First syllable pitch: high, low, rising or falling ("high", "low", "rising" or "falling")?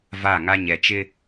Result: falling